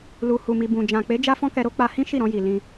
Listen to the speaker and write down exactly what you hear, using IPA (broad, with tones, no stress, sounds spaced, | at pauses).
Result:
l u˨ h u˨ m i˨ b ũ˨ d͡ʒ ã˨ k͡p e˨˦ d͡ʒ a˦ f ɔ̃˦ k ɛ˧ ɾ o˦ k͡p a˧ h ĩ˦ ʃ i˦˨ ɾ ɔ̃˧ j i˨ l ĩ˧